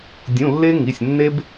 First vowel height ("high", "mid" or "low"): high